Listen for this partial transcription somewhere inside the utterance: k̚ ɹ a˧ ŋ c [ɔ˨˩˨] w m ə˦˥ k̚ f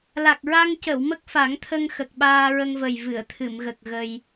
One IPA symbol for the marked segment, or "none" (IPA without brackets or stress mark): ə˨˩˨